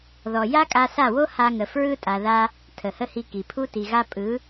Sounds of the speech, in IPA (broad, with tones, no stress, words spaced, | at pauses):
ðɔ˨ ja˦kʼa˧sa˦˨wo˦ ha˧ŋə˨ fɹɯ˦tʼa˨ ða˦ | tʰə˨hə˦hi˧ki˨ pʰu˦ti˨ɣa˦ pʼɯ˨˦